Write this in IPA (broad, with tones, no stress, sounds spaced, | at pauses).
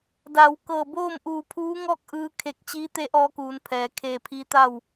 d a˩˧ w k ɤː˧˩ b oː˥˨ m ʔ uː˧˩ pʰ uː˧˥ ŋ ɔː˥˨ k̚ ʔ ɯː˧ kʰ e˧˩ k̚ t͡ɕ iː˧˥ t̪ e˧˥ ʔ ɔː˧ k uː˩˧ n pʰ ɛː˩ kʰ eː˧˩ pʰ i˧˥ t̪ a˥˨ w